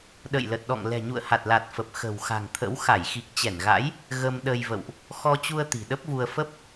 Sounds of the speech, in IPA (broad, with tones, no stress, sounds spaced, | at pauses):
ɗ ə̰˧˨ j l ə˨˩ t̚ ɗ ɔ̰˧˨ ŋ l ɛ̤˨˩ ɲ ṵ˧˨ ə̯ h a˨˩ t̚ l a˨˩ t̚ f ə˨˩ p̚ x ə̤˨˩ w x a̤˨˩ ŋ t̪ʰ ə̰˧˥ w x a˧˩ j x i˨˩ k̚ t͡ɕ ɛ˧˩ n ɣ a̰˧˥ j | ɣ ə˧ m ɗ ə˧ j v ə̰˧˨ w ʔ | x ɔ˧ t͡ɕ u˧ ə̯ t̪ i̤˨˩ ɗ ə˦˥ p̚ v u˧ ə̯ f ə˦˥ p̚